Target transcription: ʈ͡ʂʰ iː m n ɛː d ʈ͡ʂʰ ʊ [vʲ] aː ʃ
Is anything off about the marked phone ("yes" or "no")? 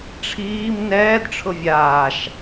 no